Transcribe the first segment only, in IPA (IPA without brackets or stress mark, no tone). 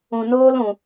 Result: ũ